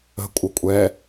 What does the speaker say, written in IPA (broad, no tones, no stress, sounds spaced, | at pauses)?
ə̤ kʷʼ ə kʷʼ ɛ